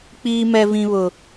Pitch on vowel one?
high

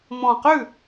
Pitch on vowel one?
low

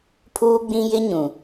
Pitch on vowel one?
high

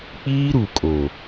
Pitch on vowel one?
high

